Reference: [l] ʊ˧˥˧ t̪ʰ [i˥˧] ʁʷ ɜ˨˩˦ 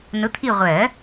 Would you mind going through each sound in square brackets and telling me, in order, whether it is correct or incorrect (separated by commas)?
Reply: incorrect, correct